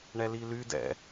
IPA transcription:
ɳɛlily dɛ̰

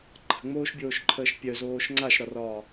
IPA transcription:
ǃʰə̤ŋ͡moːʃbʲoːʃǃʰəːʃ pʲœzoːʃ ŋ͡ǀaʃɾɒrɒː

